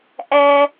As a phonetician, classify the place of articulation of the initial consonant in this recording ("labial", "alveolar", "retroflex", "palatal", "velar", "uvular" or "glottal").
glottal